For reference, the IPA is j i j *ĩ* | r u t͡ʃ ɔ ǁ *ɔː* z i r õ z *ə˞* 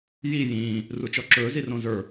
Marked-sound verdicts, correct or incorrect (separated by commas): incorrect, incorrect, correct